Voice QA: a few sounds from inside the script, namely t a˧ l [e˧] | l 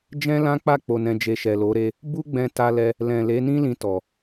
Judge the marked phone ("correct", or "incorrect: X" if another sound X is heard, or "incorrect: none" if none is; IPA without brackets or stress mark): incorrect: ɛ˧